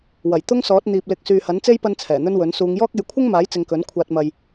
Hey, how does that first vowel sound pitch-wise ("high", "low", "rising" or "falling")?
low